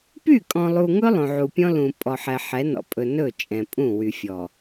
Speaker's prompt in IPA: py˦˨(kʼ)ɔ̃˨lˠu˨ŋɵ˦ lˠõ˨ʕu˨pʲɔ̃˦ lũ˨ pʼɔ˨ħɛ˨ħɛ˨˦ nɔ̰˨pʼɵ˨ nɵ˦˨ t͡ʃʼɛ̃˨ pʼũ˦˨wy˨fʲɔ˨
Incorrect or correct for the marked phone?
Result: correct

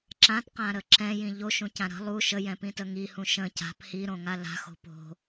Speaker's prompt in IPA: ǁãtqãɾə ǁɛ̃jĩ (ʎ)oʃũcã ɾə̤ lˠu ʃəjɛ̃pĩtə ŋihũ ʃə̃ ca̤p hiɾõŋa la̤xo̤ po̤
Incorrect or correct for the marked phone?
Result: correct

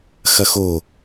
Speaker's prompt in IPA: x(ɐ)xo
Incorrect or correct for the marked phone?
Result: correct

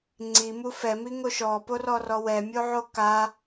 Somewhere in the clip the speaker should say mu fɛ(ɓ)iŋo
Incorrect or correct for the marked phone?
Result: incorrect: m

